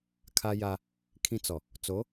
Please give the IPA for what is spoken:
kʰa˦ja˦ | kʰĩ˦t͡sɔ˨ | t͡so˨˦

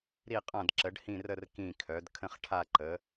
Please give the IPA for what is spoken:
ɾi˥˧qʼã˥˧dǁə˧˥ɖ hĩ˥˧rə˥˧r kĩ˥˧kʰœ˧˥d kʰə̃˥˧χʈʰa˥˧ǃə˧˥

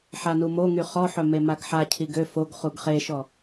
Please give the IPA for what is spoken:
ħanumoŋy χɔħœ memaɡħacʰi ɡø foɡ χuɡχeʃɔ

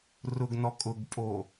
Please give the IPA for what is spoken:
rʊɡnɔkʼʊɡpʼo

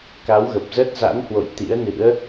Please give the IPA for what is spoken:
ka˨˦wɣə˨˩p̚zəː˦˥t̚ za̰˧˥nhwo̰˧˨j t̪ḭ˧˥ə̯nɨ̰˧˥ə̯

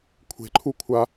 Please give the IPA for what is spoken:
kʷʰe̤ǃʰukʷʰa

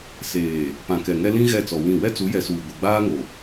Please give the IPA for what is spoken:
seː˨ | pã˨kɛ˨ŋɛ˦ lĩ˦ ɣɛ˦˨t͡sɔ˨wĩ˦˨ wɛ˦t͡su˨˦ jɛ˨suː˨ ɡʷɛ˨ɡ͡baː˦ŋo˨

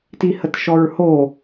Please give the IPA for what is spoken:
tihətʃɔɹho

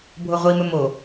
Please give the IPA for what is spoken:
bʱoʁʷimɵ mo

